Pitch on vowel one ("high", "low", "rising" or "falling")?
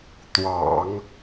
low